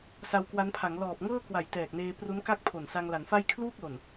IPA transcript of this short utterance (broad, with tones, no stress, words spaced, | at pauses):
sa˧wkwa˦˥npʰa˩˦ŋ lɔː˨˩p̚ŋɤː˥˩kwa˨˩j tɛː˨˩k̚neː˧pru˦˥n ka˥˩k̚pʰo˨˩n sa˧ŋla˩˦nfa˥˩j kʰluː˥˩k̚lo˨˩n